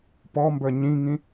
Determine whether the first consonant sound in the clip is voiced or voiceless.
voiceless